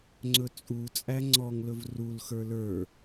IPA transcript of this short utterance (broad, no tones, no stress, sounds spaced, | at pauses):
ŋ͡ǀ ɵ t͡sʼ u t͡sʼ æ ŋ͡ǀ ɔ ŋ l ɵ v r u l x ə˞ l ə˞